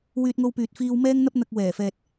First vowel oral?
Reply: yes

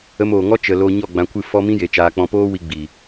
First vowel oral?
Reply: yes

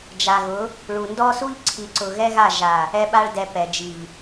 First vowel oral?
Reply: yes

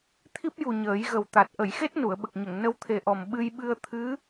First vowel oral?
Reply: yes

